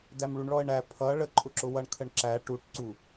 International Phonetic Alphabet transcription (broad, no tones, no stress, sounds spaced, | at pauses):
d æ m ɭ u ɳ ɭ ɔ ə̯ ɳ æ pʰ ʌ ɭ ə ǃʼ ʊ ǁ ʊ w ʌ ɳ kʰ ə ɳ ǁ æ ʈ u ʈ ǀ u